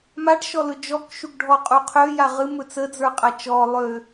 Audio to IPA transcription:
m a ʈ ʃ ɔ l ɵ d͡ʒ ɔ k ʃ u ɡ ɖʱ ɔ qʼ u qʰ ø j a ʁ ɨ m ɵ t͡s ə d͡z ə˞ qʼ a t͡ʃ ɔ lˠ ø

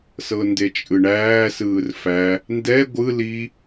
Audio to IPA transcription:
s ɤ n d e t͡ʃʼ ɯ ɳ æː s ɯː r f æ | n d ɛ ɡʷ ɯ l i

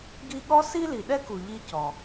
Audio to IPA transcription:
ɡ i˦ ɠ ɔ˥ s i˥ l i˨ ɗ ɛ˥ k u˨ ʎ i˦ c ɔ˩

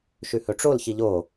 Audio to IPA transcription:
ʃ ʉ h ɵ ʈ͡ʂ o l ç i ʎ o

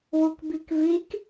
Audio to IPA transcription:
w u k b i k v i k

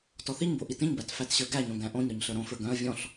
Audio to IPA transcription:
t ɔ θ i ɲ b o ʔ i t ĩ ɲ b æ t f æ t ɕ ə˞ ɡ æ ɲ õ ɡ æ̃ ʔ õ ɲ ɾ œ ɲ ɬ ə˞ ɾ õ f ə˞ ɡ œ̃ ə̯ vʲ ɔ̃ ɬ

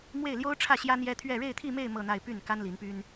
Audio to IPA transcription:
m w e˥˩ ɪ̯ l j o˥ ʊ̯ ʈ͡ʂʰ ä˥˩ ɕ j ä˥ n̪ j ɛ˥ t̪ʰ ɥ ɛ˥˧ ɻ e˥˧ ɪ̯ t̪ʰ i˥˧ m e˥˧ ɪ̯ m ɤ˥˧ n̪ a˥˧ ɪ̯ p y˥˩ n k a˥ n l i˧˥ n p y˥ n

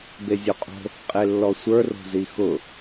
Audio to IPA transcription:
b e zʲ o qʼ o̤ | qʼ e lː ɔ sʷ ə˞ r o̤ z i x ʊ

